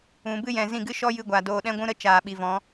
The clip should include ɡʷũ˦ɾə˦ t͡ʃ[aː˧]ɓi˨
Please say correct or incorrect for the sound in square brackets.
incorrect